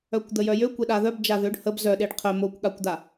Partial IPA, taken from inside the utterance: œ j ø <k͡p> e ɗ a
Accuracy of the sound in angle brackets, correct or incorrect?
incorrect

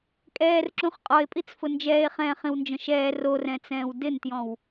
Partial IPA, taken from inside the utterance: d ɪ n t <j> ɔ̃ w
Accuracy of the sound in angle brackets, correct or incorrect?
correct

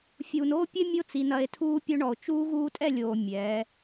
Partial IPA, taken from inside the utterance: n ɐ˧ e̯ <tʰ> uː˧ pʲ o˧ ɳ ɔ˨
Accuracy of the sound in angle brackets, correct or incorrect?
correct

